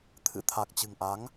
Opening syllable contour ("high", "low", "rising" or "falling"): rising